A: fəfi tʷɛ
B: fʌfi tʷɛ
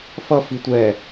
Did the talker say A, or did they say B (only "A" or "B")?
B